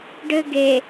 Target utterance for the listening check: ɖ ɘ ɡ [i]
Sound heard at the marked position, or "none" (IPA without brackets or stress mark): e